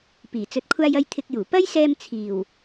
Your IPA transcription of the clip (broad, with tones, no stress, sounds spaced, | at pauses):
p iː˨˩ t͡s ɵ˨ t̚ kʷʰ aː˧ j ɐ˧ j t̪ʰ ɪ˧ k̚ j uː˨˩ p ɐ˥ j s ɛː˧ m t͡sʰ iː˨˩ w